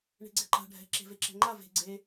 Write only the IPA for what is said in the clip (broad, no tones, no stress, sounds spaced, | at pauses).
ɳ e̤ ɡ͡ǀ ɛ ǃ a̤ ɖʱ ɛ̤ ǁ e̤ v e ǁ ɛ̤ ŋ͡ǃ a v e̤ ɡ͡ǀ e